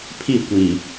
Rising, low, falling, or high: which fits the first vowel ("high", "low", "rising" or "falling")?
falling